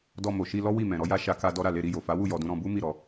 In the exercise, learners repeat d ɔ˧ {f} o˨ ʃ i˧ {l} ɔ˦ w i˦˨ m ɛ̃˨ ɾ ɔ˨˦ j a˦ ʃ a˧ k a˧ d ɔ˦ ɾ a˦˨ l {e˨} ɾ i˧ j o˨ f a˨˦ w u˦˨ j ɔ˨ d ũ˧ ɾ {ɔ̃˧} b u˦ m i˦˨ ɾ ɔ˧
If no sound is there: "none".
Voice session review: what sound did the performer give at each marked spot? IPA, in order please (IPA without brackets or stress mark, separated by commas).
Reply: m, l, e˧, ɔ̃˧